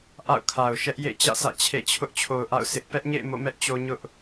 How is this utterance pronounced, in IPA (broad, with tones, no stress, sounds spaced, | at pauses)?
ʔ a̰˦˨ ʊ̯ kʰ a˨ ʊ̯ ʃ ɛ˦ ʔ j ḛ˦˨ t͡ɕ ä̰˦˨ s ä̰˦˨ t͡ɕʰ ḛ˦˨ t͡ɕʰ ʊ˦ ʔ t͡ɕʰ o˨ ʊ̯ ʔ a̰˦˨ ʊ̯ s ɪ˦ ʔ p ɛ˦ ʔ ɲ ḛ˦˨ ɪ̯ m o̰˦˨ m ɛ˦ ʔ t͡ɕ o˦ ɲ ʊ˦ ʔ